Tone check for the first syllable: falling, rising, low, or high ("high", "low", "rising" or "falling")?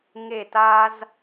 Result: falling